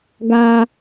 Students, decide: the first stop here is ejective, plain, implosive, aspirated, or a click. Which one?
plain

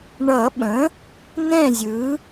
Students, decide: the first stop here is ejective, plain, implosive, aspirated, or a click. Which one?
implosive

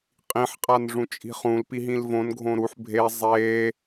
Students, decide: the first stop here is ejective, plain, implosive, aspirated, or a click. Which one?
ejective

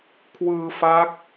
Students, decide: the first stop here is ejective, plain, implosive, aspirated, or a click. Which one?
aspirated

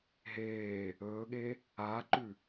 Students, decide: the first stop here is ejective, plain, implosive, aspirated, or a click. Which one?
implosive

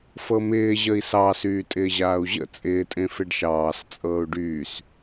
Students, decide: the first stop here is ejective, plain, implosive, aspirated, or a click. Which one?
ejective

